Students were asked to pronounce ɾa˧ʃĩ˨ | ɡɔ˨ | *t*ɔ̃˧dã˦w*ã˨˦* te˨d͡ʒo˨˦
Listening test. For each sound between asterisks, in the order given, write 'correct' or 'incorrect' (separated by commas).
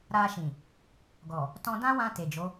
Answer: correct, incorrect